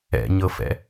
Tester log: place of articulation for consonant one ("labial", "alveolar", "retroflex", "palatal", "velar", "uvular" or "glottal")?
palatal